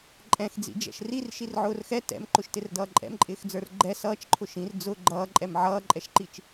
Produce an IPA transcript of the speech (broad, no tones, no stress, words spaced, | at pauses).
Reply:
ǃʼɛ̃x d͡zḭd͡ʒɛ̰ʃrir ʃirʕʊːrxɛ tɛ̰mǃʊʃtɪr dʌːǃʼɛ̰mǃʼɪːxd͡zə˞r ɡ͡ǃɛ sʌːt͡ʃǃʰʊ ʃĩr d͡zʊ ɡ͡ǃʌːǃʼɛm ʕʌːǃʼɛʃǃit͡ʃ